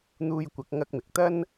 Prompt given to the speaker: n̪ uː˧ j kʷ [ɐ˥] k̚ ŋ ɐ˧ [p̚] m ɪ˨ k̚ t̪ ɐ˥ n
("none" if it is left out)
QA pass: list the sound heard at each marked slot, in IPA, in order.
ɐ˨˥, k̚

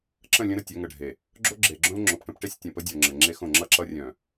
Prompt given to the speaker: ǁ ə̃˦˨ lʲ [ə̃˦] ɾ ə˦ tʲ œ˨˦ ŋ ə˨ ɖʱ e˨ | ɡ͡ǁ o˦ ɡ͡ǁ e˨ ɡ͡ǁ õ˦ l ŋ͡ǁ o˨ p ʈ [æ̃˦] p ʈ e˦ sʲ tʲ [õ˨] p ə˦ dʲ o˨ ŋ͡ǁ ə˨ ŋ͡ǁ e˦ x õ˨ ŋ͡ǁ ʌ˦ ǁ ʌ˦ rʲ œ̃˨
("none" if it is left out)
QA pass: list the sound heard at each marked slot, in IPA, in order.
ə̃˦, ə̃˦, õ˨

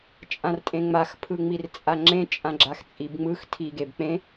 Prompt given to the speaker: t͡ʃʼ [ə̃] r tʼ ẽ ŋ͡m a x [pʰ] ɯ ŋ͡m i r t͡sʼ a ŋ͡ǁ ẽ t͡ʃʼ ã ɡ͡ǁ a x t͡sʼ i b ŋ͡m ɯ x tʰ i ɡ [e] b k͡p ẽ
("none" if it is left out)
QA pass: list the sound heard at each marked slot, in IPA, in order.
ã, pʰ, e

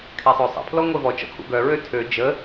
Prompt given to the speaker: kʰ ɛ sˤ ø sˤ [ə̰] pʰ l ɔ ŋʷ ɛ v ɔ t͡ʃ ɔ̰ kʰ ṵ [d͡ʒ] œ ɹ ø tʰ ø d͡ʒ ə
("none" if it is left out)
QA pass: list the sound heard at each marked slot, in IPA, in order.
ə̰, ɡ

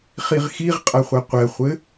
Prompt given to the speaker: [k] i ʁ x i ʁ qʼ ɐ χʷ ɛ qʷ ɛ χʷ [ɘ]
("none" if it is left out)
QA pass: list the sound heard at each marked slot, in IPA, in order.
χ, ɘ

